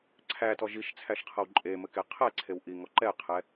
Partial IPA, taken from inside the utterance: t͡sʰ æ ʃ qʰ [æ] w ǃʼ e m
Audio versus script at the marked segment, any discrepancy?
yes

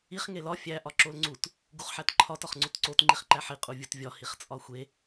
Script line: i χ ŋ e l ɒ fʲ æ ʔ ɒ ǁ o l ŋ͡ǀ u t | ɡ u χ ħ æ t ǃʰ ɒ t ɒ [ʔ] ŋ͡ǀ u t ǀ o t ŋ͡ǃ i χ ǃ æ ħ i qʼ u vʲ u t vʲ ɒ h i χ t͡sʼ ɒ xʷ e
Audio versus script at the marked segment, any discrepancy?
yes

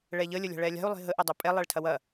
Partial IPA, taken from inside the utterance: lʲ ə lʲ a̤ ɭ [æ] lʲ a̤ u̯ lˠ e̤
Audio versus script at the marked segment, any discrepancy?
yes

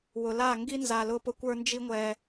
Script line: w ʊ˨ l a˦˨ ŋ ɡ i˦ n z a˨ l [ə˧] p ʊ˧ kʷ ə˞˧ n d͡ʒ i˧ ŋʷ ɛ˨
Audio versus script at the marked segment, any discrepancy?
yes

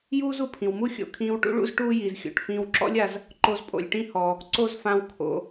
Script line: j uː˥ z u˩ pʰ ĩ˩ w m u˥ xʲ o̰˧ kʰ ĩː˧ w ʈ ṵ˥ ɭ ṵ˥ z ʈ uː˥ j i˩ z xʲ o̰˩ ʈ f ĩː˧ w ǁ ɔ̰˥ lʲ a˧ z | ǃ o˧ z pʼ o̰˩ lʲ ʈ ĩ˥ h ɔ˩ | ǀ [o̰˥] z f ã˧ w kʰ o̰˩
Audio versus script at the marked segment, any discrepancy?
yes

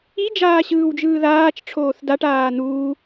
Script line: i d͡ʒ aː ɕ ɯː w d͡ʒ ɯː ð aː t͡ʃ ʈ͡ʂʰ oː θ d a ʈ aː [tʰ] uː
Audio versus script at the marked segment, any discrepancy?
yes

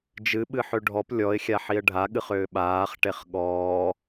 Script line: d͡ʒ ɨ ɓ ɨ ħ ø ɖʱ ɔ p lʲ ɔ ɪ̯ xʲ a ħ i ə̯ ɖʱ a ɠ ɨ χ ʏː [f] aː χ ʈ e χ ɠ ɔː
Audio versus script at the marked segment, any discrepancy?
yes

